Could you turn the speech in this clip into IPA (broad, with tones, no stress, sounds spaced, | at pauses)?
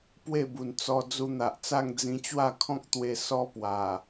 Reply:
p w e˥˧ b u˨˩ n t͡s ɔ˧ d͡z u˧ n̪ a˨ ʔ t͡s a˥˧ ŋ d͡z ĩ˧ t͡ɕ w a˥˧ kʰ ɔ̃˦ k̚ t̪ w e˧ s ɔ˦ p w a˨˩